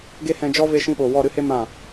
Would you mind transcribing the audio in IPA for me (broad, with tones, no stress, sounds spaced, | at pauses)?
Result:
ɡ e˦ h ɛ̃˧ d͡ʒ ɔ˦ v e˧ ʃ ĩ˧ ɓ o˨ w ɔ˦˨ ɾ ɨ˦ h e˦ m ã˦˨